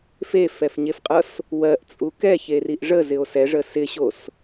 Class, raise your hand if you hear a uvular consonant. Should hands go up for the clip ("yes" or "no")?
yes